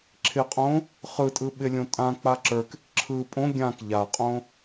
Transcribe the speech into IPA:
ǁʰ ɪ qʼ õ | χ ɯ tʼ ɯ ɓ ɪ lʲ õ tʼ ã k͡p a ǁ ə˞ k ɪ k ǁʰ ɯ pʼ õ ɡʲ ã k ʎ a qʼ õ

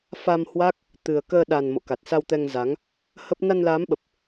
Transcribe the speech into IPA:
f a˧ m h w a˦˥ k̚ | t̪ ɨ˨˩ ə̯ k əː˧ ɗ a˨˩ n m o̰˧˨ k a˨˩ t̚ s a˧ w t̪ ɛ˧ ŋ z a˨˦ ŋ | h ə˦˥ p̚ n a˧ n l aː˨˦ m ɓ ə˨˩ p̚

